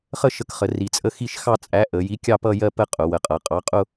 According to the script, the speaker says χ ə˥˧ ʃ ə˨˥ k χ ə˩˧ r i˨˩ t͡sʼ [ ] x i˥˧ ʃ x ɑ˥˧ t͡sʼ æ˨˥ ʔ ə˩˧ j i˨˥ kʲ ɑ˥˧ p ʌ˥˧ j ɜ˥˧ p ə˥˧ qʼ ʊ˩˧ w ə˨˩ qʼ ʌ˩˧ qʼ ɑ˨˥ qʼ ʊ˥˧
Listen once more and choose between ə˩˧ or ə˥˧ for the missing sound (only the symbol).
ə˥˧